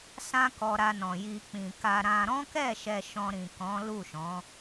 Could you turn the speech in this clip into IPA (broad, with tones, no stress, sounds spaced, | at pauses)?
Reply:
s ã˦ k ɔ˧ ɾ a˧ n ɔ̃˨ j i˧ k͡p ĩ˨ k a˧ ɾ ã˧ ɾ ɔ̃˦ k ɛ˦˨ ʃ ɛ˧ ʃ ɔ̃˧ ɾ ĩ˨ k ɔ̃˨˦ l u˦˨ ʃ ɔ̃˨˦